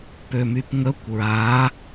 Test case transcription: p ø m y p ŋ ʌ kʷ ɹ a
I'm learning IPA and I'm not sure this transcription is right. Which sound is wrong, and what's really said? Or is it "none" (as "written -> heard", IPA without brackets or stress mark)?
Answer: ʌ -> ə